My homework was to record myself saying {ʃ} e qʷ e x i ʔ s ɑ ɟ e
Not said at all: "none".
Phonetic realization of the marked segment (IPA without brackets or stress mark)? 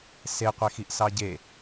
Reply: s